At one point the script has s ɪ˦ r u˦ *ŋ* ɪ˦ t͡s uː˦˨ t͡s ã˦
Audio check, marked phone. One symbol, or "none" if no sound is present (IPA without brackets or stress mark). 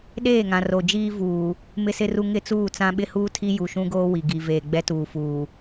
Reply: ŋ